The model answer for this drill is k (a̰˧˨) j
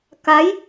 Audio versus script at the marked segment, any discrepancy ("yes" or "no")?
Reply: yes